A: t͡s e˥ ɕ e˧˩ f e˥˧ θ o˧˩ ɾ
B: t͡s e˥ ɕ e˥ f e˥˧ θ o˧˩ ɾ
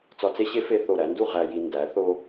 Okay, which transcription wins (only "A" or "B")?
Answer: B